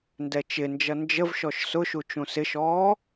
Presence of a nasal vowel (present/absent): present